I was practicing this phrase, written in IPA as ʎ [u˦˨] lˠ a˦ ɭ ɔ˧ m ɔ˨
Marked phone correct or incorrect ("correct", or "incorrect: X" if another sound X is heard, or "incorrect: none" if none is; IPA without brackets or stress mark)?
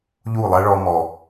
correct